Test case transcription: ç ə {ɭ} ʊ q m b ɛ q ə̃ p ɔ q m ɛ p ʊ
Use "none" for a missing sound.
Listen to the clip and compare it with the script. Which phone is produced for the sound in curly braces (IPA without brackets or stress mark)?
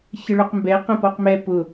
ɭ